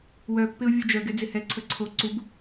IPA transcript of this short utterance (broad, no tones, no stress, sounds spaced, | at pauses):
w œ pː ɪ ʊ̯ vʲ u d͡ʒ œ ɡ ɛ d͡z ɪ h ɛ ǀʰ ə ǀʰ o ǀ u b